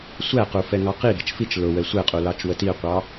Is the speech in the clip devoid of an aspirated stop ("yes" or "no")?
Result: yes